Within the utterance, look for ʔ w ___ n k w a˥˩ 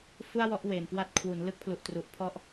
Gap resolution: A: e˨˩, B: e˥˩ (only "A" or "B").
A